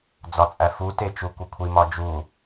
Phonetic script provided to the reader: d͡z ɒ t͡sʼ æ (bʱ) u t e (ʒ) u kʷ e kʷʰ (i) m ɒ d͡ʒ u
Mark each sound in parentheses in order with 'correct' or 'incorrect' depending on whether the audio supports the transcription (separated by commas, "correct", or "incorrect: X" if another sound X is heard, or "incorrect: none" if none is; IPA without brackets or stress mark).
incorrect: f, incorrect: t͡ʃ, correct